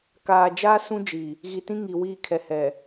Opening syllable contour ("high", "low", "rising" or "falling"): low